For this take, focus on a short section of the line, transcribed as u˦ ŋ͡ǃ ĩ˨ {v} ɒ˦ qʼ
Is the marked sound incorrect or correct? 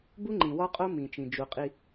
incorrect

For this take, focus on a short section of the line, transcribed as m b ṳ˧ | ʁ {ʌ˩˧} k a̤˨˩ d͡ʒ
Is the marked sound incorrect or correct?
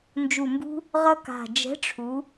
incorrect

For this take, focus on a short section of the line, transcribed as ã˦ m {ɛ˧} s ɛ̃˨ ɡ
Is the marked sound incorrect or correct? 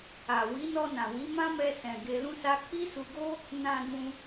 correct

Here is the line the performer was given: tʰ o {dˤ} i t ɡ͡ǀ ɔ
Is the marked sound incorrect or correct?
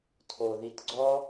incorrect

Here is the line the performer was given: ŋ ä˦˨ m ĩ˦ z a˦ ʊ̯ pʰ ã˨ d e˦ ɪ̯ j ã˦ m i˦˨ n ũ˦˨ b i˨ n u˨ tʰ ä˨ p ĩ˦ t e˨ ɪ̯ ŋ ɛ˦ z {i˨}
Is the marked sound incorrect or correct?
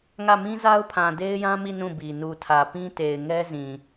incorrect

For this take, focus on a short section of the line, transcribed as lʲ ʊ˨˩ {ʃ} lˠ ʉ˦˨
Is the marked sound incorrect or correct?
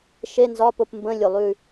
incorrect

